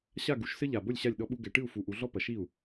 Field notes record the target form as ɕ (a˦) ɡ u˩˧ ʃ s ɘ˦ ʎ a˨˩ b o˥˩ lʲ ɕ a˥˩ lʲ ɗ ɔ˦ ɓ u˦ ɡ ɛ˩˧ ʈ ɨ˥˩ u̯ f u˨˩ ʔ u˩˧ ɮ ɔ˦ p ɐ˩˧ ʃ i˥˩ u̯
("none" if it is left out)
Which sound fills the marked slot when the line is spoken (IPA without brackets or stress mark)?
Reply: a˥˩